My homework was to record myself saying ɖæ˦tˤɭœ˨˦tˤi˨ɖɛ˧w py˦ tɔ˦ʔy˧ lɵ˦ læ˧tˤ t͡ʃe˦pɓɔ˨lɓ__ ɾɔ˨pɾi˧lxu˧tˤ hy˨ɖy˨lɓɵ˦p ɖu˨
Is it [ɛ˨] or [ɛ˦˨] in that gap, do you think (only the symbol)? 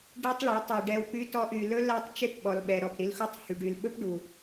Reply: ɛ˨